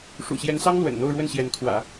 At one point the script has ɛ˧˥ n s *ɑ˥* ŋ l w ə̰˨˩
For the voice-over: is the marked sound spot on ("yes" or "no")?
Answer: yes